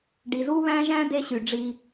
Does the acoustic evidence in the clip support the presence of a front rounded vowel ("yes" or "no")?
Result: yes